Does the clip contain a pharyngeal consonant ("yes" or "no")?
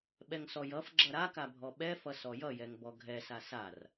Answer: no